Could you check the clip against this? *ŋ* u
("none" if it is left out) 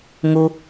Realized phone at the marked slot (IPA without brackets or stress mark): ŋ